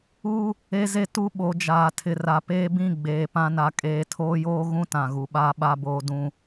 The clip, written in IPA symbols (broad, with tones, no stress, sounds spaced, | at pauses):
u˦ | e˦ z e˦ t u˦ ɓ o˨˦ d͡ʒ aː˨ tʰ ɪ˨ r a˨ p eː˦ b ĩ˦˨ ɡ͡b eː˨ p ã˦ n a˨ kʼ eː˨ tʰ oː˦ j oː˦ ɣ ũ˦ t ã˨ ɣ u˨˦ ɓ aː˦ ɓ a˦ b oː˦ d ũ˦